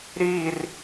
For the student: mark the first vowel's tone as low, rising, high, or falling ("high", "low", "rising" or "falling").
falling